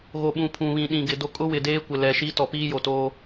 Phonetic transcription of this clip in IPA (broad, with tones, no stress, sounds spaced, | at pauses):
ɣ o˨ ɓ ũ˨ pʰ ũ˨ β ĩ˨ ɗ ĩ˨ ɡ ɪ˨ d o˦ kʼ ʊ˦ w ɪ˨ d eː˦ kʷ ɪ˨ l ɛ˨ ʃ i˦ t ɔ˨ p iː˦ j o˨ t oː˦